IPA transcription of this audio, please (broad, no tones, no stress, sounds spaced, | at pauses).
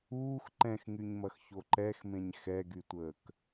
uː x ǃ ɛ̃ x ŋ y ɲ m ɐ x ç o ǃ ɛ x m ẽ ɲ x ɛ ɡ y tʷ əː k